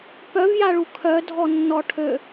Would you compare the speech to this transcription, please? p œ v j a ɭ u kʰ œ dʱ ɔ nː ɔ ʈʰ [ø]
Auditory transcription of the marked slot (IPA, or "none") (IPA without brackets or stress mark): ø